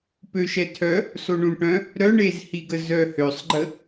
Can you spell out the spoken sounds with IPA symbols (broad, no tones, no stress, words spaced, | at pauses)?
pøʃɛtʰœ | soɳũʈœ̃ | ɾœɳezhiɡə zœhøsˤɡ͡ǃə